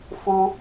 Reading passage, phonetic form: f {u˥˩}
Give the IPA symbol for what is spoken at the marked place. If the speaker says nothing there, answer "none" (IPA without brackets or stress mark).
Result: u˥